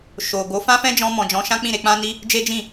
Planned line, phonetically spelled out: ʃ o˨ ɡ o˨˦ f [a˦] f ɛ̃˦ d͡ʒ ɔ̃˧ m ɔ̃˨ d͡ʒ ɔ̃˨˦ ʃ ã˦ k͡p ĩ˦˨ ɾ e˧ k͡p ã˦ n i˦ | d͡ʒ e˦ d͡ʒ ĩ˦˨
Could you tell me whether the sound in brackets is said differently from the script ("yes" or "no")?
yes